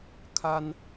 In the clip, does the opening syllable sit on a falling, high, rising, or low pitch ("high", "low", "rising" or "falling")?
high